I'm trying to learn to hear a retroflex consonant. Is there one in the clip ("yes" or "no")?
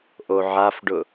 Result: yes